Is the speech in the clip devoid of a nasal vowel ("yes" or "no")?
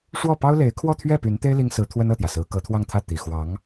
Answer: yes